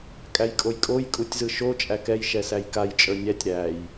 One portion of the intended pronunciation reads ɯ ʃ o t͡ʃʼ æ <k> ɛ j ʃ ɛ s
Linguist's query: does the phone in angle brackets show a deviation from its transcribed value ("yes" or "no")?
no